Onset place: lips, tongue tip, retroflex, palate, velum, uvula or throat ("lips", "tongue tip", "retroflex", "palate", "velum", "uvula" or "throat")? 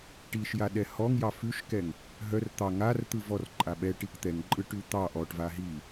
retroflex